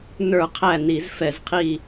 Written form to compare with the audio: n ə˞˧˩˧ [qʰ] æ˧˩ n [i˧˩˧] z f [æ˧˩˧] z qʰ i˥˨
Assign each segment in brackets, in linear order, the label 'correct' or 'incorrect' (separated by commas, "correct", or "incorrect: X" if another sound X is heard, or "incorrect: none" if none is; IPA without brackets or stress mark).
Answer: correct, correct, incorrect: ɛ˧˩˧